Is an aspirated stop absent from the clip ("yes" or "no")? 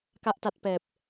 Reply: yes